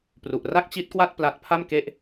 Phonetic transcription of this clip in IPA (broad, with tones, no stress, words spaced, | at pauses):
pru˨˩ʔ ra˥˩k̚t͡ɕi˦˥t̚kwa˥˩t̚ pla˦˥t̚ pʰa˥˩mke˦˥ʔ